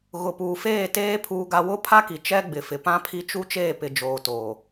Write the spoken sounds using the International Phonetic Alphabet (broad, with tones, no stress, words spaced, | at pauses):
ɣʊ˨puː˨ feː˦˨teː˦ pʰuː˦ɡa˦ wʊ˦pʰa˦ki˨ t͡ʃɛ˦ɡ͡bɪ˨fɪ˨ pã˦pʰi˦t͡ʃu˦ t͡ʃeː˦˨pɪ˨d͡ʒoː˨ toː˨